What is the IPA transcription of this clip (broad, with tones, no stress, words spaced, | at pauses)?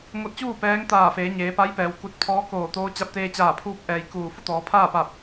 ŋo˧t̚t͡ɕuː˥˨ pɛː˧˥ŋt̪aː˧˩feː˩˧ ɲeː˩˧pa˧˥jpɛː˩w ku˧˩t̚pʰɔː˧˥ koː˧˩t̪oː˧˥ t͡ɕa˧p̚t̪eː˧t͡ɕaː˧˩ pʰuː˧p̚ʔɛː˩j kuː˧˩ fu˥˨t̪ɔː˩˧ pʰaː˥˨pa˧˩p̚